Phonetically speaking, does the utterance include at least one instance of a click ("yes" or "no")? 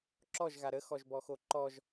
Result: yes